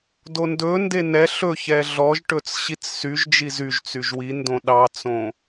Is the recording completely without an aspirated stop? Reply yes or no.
yes